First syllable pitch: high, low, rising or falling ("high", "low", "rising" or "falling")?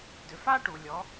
low